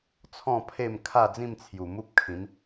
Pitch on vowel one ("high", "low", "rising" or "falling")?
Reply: falling